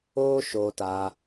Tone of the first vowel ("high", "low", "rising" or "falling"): high